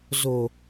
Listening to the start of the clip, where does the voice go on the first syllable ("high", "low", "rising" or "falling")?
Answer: low